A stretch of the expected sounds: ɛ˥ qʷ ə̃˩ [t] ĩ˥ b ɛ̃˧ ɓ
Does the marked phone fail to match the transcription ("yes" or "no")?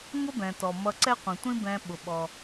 yes